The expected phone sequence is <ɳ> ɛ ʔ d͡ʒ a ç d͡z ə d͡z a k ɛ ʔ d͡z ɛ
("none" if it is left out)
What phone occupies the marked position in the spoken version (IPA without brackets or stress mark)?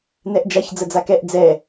n